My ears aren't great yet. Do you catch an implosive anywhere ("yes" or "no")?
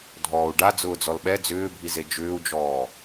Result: yes